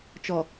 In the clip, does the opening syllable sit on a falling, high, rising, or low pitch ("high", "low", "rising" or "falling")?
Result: low